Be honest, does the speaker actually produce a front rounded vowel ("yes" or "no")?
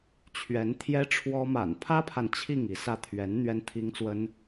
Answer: no